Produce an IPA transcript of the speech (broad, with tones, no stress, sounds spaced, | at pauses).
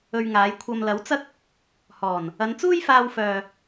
ɵ˧ ɥ ŋ aː˨˧ j kʷʰ ɐ˨ m l ɐ˨˥ w t͡s ɐ˥ k̚ | h ɔː˨˩ n | ɐ˨˧ n t͡s uː˥ j f aː˧ w f œː˨